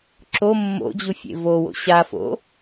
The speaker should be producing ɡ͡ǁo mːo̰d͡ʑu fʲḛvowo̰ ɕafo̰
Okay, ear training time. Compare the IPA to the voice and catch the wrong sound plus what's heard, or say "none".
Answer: ɡ͡ǁ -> ǁ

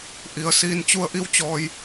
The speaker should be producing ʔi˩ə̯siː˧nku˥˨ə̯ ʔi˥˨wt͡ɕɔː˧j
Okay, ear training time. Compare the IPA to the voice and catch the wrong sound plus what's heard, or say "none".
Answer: k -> t͡ɕ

